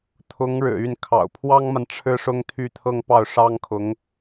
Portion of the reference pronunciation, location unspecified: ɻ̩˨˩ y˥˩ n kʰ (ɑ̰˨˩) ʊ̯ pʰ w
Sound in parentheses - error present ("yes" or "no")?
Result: no